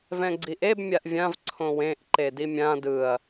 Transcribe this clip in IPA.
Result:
v ɛ̃ ɡ͡ǀ i ʔ e b mʲ a ʔ vʲ ã v ǀʰ õ w ẽ ʔ ǃ e d i mʲ ã d ɯ ɐ̯

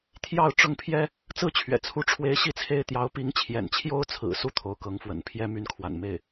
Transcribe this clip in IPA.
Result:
t̪ʰ j ɑ˥˧ ʊ̯ ʈ͡ʂ ʊ˥˩ ŋ pʰ j ɛ˥ | t͡s ɹ̩˥ t͡ɕʰ ɥ ɛ̰˨˩ t͡sʰ u˧˥ ʈ͡ʂʰ w e˧˥ ɪ̯ ɕ i˥˩ t͡sʰ e˥ ɪ̯ t̪ j ɑ˧˥ ʊ̯ p i˧˥ ŋ t͡ɕʰ j ɛ̰˨˩ n t͡ɕʰ j o˥ ʊ̯ t͡sʰ ɹ̩˨˩ s u˥˩ t̪ʰ o˧˥ ʊ̯ k ɤ˧˥ ŋ f w ə̰˨˩ n pʰ j ɛ˥ m y˧˥ n kʰ w a̰˨˩ n m e˥˩ ɪ̯

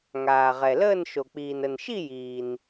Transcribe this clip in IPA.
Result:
ŋ aː˨ ʁ ɛ˨ l əː˥˧ n ʃ o˨ k͡p iː˨ n ə˨ n ʃ i˥˧ j iː˨ n

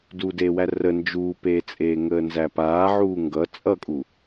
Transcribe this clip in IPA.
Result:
d uː d eː w æ r ə n d͡ʒ uː p eː t͡sʼ eː ŋ əː n z æ p aː ʕ uː ŋ ɡ ʌ t͡sʼ ʌ kʼ u

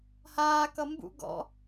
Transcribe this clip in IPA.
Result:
h aː k ʌ m b ṵ ɡ ɔ̰

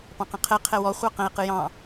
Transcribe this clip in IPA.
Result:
p ɑ̃ q ə̃ qʰ ɛ qʰ ɛ w ɔ χʷ ɑ q ə̃ e̯ q ɨ j ɑ̃

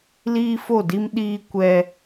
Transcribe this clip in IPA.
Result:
l iː˦ f o˦˨ d i˦ m ɗ iː˦ kʷ ɛ˦

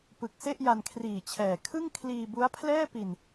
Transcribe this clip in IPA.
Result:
p ɯ˨˩ k̚ s e˥˩ ʔ j a˧ n kʰ r iː˨˩ t͡ɕʰ ɛː˨˩ kʰ ɯ˥˩ ŋ kʰ l iː˧ b u˦˥ a̯ pʰ l ɛː˥˩ p i˧ n

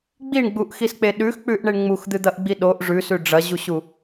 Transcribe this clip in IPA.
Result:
ɡ͡b i ɳ ɡ͡b u ʔ x i s k͡p e ɗ ʉ x k͡p ʉ ʔ ɳ e ɳ ŋ͡m u x d̪ ɨ d̪ ɐ ʔ ɡ͡b i ɗ o ʔ ʐ ʉ s ʉ ɖ͡ʐ ɐ ʑ u ɕ u

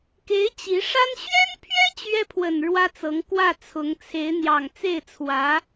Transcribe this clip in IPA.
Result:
k e˧˥ ɪ̯ t͡ɕ i˧˥ ʂ a˥ n ɕ ɥ ɛ˥ n pʰ ɥ ɛ˥ t͡ɕ ɥ ɛ˥ pʰ w ə˨˩ n ɻ w ä˥ t͡s ɤ˧˥ ŋ k w ä˥˩ t͡sʰ ʊ˧˥ ŋ t͡sʰ e˧˥ ɪ̯ n̪ j ɑ˨˩ ŋ t͡s e˥˩ ɪ̯ t͡sʰ w ä˧˥

